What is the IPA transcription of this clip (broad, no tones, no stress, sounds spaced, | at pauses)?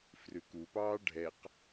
f r ʉ k u p ɑː ɖʱ ɛ q